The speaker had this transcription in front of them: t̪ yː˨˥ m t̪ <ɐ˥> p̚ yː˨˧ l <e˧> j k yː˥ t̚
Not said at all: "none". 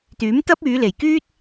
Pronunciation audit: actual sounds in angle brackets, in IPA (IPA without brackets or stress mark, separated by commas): ɐ˥, e˨˩